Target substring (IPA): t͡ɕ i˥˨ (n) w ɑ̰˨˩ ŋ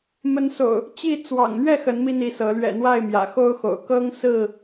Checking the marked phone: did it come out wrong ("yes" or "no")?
yes